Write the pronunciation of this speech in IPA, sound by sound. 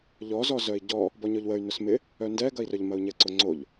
ʎ ɔ z ɔ z œ i̯ ɟ ɔ | b ɔ ɲ ɔ ʎ w ə y̯ n ʊ s m ɪ | œ n d ɛ ɡ ɐ i̯ r œ ʎ m ɐ u̯ ɲ ɛ ǀ ʊ ŋ͡ǀ o ʎ

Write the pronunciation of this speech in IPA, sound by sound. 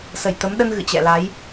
s ə˧˩ j t̪ ə˨˦ m ɗ ə˧ n ɣ ɨ̰˧˨ t͡ɕ ɛ̰˧˨ l a˨˦ j

